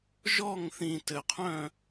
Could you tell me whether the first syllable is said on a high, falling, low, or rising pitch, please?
falling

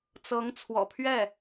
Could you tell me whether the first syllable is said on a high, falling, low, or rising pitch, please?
rising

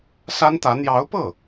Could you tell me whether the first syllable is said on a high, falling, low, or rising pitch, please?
high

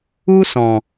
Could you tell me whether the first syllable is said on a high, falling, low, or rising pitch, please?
high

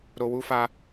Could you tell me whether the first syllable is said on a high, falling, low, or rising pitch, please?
low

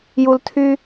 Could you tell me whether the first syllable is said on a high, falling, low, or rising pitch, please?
low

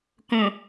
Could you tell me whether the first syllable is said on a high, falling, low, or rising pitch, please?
low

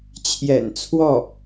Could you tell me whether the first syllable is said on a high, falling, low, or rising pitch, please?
low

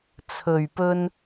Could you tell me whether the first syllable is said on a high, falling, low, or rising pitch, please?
low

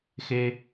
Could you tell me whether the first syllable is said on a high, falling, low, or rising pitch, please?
high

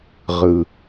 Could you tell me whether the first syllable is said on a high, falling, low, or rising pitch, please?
low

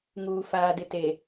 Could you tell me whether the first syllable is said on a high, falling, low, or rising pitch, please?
low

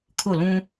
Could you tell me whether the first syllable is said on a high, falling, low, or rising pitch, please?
falling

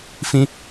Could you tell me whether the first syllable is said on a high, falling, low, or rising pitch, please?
high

